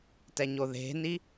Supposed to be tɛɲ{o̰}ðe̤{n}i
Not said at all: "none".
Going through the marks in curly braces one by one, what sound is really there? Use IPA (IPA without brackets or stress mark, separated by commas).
o, n